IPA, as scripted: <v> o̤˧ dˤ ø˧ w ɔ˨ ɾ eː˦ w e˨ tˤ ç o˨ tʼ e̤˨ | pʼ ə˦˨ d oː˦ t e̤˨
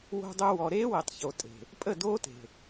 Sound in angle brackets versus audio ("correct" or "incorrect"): incorrect